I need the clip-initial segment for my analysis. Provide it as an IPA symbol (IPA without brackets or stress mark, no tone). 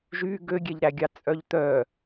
ʒ